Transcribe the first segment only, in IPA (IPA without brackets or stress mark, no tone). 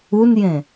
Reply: u